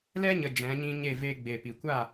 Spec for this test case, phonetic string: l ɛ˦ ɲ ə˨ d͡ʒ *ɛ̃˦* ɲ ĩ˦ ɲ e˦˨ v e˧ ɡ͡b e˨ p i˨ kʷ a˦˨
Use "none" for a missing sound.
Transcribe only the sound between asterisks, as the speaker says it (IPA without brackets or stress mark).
ɛ̃˨˦